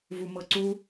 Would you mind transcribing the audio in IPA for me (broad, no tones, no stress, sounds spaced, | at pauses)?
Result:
v u m ɤ ǀ u